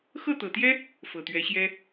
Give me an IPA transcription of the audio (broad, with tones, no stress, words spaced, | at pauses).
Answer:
xɤ˥˩t̪ɤ˨˩t̪jɛ˥ | fɤ˨˩t̪ɥɛ˧˥ɕjɛ˥